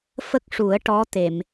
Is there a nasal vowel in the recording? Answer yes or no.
no